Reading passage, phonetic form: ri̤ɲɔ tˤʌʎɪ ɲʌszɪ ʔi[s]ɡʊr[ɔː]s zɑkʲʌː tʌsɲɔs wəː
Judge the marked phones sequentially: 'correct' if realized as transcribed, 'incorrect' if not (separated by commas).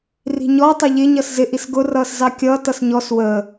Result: correct, incorrect